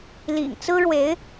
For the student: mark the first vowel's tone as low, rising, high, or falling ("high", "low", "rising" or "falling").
low